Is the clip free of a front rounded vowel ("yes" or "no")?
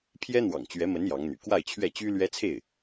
no